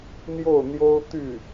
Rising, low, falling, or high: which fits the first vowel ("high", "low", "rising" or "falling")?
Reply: falling